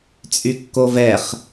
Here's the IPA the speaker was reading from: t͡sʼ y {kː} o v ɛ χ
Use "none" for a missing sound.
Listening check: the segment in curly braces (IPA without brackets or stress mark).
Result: kː